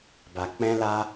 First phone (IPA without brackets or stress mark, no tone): b